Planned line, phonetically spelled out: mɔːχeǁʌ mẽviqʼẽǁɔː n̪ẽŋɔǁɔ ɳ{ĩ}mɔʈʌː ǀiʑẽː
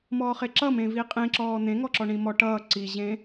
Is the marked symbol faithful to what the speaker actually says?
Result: yes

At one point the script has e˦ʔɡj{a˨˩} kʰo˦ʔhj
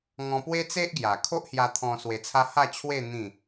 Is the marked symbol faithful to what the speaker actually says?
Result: yes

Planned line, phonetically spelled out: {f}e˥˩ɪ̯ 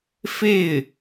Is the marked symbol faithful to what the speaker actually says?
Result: yes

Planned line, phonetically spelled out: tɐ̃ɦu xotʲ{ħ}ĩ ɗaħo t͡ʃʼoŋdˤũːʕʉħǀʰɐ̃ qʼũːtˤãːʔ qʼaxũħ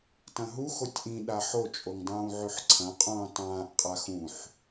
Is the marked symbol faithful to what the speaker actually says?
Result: no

